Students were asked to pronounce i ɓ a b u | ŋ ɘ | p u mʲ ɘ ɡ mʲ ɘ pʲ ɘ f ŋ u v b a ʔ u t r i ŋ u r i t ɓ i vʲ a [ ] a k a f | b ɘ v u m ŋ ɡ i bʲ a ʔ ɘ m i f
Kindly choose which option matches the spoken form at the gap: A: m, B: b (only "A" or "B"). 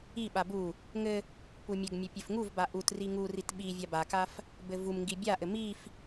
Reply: B